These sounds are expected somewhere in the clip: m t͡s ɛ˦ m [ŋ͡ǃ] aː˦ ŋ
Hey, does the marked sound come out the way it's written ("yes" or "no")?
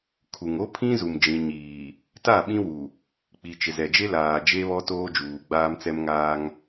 no